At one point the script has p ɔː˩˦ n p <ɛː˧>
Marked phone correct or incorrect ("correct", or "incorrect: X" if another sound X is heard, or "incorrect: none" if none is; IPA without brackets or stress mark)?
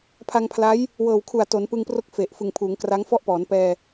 correct